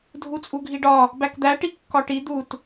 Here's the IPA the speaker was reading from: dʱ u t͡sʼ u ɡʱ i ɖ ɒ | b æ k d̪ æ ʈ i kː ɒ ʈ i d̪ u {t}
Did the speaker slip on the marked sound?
no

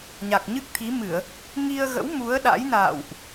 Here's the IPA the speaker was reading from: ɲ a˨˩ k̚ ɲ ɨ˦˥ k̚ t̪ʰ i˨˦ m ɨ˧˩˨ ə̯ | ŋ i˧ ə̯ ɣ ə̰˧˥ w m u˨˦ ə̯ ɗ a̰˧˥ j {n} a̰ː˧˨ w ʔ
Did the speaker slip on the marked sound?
no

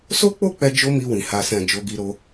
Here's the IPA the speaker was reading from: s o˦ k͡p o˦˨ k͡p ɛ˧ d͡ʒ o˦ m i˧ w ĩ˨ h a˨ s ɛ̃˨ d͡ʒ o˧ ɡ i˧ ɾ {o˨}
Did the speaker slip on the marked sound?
yes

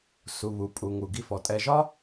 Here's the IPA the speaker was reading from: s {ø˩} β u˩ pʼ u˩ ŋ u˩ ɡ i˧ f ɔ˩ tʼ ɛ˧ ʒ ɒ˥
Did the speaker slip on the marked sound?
yes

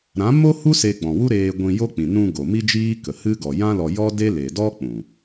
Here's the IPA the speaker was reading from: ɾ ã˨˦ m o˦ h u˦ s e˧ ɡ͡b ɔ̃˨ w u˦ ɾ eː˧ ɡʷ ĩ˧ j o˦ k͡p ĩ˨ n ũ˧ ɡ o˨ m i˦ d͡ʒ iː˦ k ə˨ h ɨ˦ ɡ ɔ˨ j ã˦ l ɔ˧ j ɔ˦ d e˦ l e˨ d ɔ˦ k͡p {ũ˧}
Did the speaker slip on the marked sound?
yes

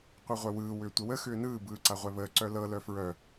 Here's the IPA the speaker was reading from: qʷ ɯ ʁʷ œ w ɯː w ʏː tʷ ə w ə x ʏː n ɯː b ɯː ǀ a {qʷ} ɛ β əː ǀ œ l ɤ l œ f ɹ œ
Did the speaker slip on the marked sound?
yes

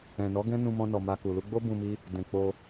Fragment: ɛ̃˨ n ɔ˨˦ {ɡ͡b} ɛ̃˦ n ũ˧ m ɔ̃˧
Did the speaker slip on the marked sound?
yes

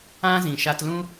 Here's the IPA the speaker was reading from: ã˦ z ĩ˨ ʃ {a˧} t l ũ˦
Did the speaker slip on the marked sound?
no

